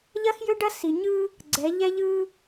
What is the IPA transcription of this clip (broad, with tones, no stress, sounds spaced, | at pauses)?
ʎ ɐ˦ x j ø˦ ɖ ɐ˦ s i˨ ɲ ɯ˦ | ɡ͡ǀ ɛ˨˦ ʎ ɛ˦ ʎ ɯ˦